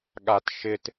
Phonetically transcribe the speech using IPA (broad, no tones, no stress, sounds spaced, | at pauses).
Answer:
ɠ a t ʃ ɪ t